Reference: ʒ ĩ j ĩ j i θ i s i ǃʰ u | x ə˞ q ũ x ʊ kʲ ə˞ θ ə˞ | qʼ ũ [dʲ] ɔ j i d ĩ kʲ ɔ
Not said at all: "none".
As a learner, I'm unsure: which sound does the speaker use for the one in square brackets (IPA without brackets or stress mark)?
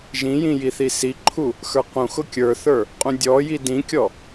dʲ